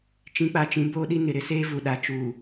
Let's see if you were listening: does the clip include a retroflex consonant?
no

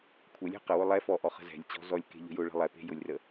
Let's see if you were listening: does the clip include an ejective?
no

